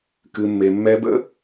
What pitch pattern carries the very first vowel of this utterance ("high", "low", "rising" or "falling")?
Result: low